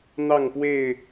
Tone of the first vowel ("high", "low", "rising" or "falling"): falling